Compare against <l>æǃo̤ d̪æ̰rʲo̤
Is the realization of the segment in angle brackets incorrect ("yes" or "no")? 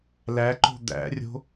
no